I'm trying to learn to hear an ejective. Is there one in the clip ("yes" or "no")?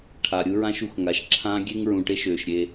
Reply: no